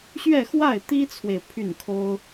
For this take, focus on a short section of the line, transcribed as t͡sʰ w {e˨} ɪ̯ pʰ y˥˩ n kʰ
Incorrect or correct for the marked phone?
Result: correct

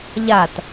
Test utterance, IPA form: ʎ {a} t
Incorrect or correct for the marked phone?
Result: correct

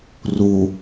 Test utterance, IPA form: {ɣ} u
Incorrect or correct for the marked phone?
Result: incorrect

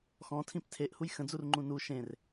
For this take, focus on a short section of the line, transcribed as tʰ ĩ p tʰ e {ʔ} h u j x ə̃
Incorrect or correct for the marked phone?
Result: correct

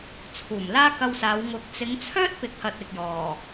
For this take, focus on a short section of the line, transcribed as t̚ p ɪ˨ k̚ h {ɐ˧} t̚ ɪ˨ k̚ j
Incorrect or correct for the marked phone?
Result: incorrect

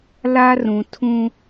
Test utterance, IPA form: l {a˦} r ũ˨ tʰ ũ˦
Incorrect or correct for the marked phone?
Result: correct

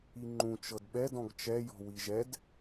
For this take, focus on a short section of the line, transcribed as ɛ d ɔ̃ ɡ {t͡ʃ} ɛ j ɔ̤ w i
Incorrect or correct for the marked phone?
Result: correct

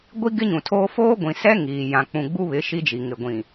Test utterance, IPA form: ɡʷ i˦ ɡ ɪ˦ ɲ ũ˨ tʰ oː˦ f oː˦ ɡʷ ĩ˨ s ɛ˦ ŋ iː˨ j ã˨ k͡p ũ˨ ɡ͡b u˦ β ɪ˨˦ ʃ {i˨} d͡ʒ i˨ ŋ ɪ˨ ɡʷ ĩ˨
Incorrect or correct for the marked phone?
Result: incorrect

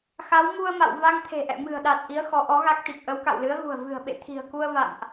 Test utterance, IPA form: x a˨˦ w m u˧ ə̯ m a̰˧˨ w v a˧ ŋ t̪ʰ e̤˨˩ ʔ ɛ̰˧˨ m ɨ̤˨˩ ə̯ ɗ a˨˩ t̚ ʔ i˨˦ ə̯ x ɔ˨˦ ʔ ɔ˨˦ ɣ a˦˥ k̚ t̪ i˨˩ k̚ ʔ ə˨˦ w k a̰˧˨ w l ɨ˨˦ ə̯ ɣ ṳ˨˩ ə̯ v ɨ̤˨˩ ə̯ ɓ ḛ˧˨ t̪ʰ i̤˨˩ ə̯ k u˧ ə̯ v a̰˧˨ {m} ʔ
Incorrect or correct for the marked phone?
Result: correct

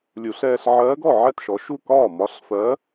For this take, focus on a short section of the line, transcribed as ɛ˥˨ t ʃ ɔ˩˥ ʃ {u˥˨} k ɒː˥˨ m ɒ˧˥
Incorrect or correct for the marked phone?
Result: correct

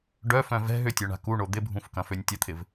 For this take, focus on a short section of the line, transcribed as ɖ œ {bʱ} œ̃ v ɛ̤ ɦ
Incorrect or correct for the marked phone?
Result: incorrect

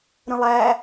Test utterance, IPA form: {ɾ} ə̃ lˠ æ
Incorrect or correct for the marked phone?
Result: correct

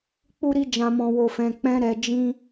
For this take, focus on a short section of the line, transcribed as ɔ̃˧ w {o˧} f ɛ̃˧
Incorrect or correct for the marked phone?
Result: correct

